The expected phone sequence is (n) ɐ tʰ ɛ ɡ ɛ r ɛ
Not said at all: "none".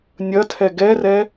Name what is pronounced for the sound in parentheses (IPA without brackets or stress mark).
nʲ